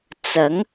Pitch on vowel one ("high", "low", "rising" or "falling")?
rising